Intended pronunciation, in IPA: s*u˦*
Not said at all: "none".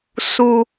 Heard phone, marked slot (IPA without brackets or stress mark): u˦